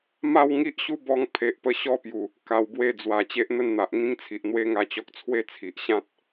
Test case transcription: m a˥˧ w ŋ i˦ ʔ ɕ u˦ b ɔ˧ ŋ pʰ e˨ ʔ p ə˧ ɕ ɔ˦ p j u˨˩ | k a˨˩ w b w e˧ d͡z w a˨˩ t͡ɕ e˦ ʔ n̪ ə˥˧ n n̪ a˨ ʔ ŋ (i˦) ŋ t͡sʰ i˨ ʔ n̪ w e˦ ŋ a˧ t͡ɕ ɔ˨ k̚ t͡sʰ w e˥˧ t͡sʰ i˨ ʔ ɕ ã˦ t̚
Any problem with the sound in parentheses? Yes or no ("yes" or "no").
yes